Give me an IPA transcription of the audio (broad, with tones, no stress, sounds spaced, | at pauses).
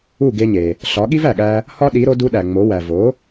u˥˩ ɡ e˧ ɲ e˩ | ɬ ɒ˩˥ ɠ i˥ v æ˩ ɠ æ˧ | h ɒ˥ ɗ i˩˥ ɾ o˩˥ d u˥ ɗ æ˩ ŋ͡m o˩˥ w æ˩ v o˩˥